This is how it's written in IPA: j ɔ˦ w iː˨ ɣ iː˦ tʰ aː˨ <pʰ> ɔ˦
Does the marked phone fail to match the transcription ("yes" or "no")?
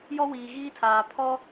no